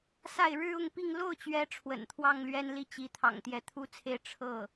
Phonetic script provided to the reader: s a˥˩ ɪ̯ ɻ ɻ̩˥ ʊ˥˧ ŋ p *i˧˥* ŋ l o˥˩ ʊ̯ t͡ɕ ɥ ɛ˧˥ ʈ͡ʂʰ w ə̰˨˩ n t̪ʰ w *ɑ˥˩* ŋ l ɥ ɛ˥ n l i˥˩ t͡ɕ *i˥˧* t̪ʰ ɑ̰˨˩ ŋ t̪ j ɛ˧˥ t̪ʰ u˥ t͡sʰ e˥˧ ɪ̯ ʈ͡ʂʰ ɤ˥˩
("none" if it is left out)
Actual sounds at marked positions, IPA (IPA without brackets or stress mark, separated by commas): i˥˧, ɑ˥˩, i˧˥